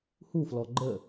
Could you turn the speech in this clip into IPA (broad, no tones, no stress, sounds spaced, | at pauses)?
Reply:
h u f l ɔ ɡ͡ǃ ə